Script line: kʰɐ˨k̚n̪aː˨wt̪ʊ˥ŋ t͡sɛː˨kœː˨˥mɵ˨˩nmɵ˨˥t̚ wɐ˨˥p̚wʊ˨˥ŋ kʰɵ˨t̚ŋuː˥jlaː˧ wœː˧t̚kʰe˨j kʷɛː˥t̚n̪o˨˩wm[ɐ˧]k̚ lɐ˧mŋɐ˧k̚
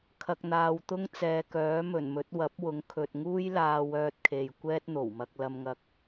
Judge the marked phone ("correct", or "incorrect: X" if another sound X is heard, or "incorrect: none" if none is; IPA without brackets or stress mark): correct